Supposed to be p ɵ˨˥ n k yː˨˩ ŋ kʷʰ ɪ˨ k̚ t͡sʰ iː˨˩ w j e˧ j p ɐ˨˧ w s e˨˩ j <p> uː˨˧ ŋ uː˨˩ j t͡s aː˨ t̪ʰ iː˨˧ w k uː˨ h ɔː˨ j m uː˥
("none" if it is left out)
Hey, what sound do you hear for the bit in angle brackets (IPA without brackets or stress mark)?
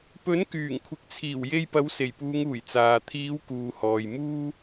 p